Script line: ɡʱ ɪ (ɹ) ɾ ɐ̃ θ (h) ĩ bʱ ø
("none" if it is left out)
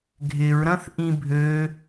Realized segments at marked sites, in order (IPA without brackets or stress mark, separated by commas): ɹ, ʔ